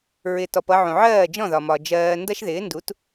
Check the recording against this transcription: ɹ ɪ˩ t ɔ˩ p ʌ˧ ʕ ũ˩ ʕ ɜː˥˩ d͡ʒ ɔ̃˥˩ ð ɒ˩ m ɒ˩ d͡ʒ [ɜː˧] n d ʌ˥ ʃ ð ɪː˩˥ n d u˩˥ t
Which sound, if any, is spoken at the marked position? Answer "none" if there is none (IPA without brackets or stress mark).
ɜː˧